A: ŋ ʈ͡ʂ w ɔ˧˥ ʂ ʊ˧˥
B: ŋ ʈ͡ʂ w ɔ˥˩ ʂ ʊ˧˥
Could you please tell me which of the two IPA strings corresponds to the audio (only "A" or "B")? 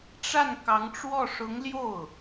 B